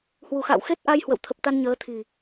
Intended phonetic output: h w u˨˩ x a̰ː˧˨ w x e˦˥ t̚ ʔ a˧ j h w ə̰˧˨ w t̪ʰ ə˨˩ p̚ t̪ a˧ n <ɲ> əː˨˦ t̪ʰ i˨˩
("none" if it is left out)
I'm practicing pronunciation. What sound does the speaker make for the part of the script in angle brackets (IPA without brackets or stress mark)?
ɲ